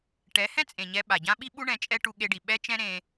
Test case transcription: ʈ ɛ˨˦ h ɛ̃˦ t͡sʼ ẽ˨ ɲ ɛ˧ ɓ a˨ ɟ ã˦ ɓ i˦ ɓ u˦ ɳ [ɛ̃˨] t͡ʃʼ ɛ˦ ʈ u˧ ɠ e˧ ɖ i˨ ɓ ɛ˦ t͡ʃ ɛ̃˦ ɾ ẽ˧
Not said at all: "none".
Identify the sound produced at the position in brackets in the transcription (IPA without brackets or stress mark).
ɛ̃˧